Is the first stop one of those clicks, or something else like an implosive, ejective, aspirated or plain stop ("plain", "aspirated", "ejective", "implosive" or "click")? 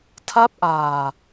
aspirated